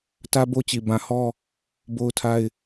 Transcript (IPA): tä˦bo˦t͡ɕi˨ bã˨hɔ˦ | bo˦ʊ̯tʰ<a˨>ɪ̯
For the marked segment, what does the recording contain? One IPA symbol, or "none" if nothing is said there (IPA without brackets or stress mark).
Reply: a˦